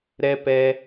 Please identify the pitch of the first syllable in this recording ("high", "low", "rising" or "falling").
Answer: high